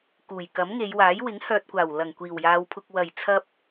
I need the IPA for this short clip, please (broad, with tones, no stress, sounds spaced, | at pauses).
k uː˨˩ j k ɐ˨˥ m ŋ e˨˧ j w aː˨˥ j w ɪ˨˥ ŋ h œː˨ t̚ kʷ aː˨˩ w l ɐ˨˩ ŋ kʷ iː˨˩ w j aː˨˧ w pʰ ʊ˧ k̚ w ɐ˨˩ j t͡sʰ ɐ˧ p̚